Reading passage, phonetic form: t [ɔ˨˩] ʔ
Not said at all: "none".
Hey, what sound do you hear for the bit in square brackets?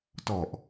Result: ɔ˨˩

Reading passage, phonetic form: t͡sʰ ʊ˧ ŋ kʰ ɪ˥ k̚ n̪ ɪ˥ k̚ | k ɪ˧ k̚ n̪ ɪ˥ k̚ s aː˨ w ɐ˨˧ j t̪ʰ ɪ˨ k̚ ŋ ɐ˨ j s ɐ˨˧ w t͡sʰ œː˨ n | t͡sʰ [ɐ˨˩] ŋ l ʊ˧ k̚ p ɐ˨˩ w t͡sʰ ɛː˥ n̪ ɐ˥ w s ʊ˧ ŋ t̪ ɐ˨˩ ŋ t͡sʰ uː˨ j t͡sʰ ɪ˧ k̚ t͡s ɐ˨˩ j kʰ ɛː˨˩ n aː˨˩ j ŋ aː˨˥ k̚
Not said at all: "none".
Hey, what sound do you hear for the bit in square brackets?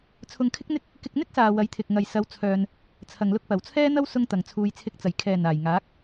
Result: ɐ˨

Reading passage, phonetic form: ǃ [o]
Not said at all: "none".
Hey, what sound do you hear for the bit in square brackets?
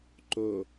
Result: o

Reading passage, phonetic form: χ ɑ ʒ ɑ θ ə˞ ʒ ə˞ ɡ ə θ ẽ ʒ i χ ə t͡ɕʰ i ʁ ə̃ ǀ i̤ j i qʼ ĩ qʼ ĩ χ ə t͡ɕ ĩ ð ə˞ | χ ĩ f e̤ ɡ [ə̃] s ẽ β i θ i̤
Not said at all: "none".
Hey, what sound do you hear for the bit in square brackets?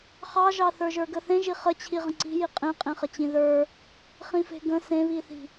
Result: ə̃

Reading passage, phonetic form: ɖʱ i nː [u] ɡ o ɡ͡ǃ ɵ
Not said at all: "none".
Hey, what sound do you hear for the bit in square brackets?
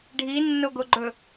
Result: o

